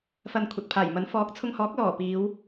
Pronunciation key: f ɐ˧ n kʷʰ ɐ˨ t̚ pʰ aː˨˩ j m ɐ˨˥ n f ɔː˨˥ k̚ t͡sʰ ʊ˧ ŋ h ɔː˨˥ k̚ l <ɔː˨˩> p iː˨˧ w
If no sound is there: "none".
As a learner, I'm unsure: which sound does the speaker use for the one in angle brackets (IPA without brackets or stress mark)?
ɔː˨˩